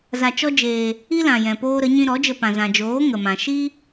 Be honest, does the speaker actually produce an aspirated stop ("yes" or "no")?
no